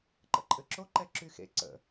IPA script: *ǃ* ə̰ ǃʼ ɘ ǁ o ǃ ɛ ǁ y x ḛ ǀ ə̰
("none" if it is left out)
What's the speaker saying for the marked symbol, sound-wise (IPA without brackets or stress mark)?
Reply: ǃ